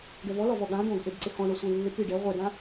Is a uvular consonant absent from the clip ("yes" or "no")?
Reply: no